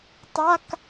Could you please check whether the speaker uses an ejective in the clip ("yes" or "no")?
no